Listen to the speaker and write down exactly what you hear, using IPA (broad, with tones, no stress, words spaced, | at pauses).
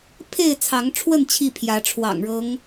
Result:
pʰe˥˨ɪ̯t͡sʰɑ˨˦ŋʈ͡ʂʰwə˥˨n t͡ɕʰi˥˨ pʰjä˨˦ʈ͡ʂʰwɑ̰˨˩ŋɻɤ˨˦ŋ